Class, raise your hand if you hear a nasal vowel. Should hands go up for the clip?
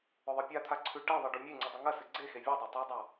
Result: no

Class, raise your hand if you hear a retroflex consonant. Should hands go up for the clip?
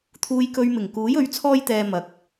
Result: no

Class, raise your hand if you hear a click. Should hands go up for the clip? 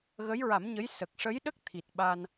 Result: no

